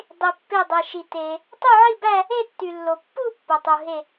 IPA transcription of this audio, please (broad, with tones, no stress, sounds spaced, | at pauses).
dˤ i˩ pː e˧˩ dˤ e˩ ʃ i˩ t e˩ | tˤ u˥˧ ʕ i˥˧ b æ˥˧ | e˥˧ tː y˩ lː o˩ pː u˥˧ pː o˩ tˤ u˩ ɦ e˧˩